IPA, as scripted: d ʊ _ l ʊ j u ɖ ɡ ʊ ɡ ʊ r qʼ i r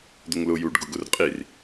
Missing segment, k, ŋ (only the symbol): ŋ